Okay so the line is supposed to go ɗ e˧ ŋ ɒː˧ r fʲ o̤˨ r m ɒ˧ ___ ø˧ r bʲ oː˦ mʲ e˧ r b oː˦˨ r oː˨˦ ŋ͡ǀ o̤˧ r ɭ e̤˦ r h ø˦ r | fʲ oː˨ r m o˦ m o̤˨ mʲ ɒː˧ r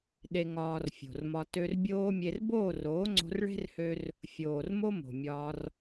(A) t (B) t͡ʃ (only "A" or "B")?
A